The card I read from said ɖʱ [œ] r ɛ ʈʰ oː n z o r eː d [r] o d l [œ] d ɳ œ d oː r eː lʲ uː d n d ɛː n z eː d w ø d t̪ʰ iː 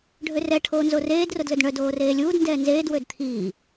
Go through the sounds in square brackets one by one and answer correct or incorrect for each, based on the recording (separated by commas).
incorrect, correct, incorrect